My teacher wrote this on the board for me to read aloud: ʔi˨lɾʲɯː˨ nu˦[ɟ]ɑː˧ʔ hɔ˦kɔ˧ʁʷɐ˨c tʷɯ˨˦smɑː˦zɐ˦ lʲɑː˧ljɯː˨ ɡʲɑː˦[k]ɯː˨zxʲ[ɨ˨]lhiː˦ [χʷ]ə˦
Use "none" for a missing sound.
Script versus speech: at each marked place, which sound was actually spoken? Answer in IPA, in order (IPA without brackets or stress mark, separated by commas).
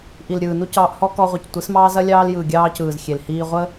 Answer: c, c, e˨, ʁʷ